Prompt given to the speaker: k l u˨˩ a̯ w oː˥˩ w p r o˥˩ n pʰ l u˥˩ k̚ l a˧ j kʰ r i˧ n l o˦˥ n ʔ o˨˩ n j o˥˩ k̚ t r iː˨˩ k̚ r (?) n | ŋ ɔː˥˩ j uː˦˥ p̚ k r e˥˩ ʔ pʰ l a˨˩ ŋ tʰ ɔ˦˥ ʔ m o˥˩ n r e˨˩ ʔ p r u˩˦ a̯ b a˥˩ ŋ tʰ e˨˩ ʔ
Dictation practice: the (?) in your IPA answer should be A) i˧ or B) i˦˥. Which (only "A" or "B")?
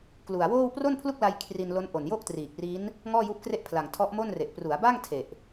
B